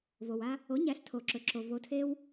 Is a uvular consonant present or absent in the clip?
absent